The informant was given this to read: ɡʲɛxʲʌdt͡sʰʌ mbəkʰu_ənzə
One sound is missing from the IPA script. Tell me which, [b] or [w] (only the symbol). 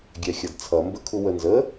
w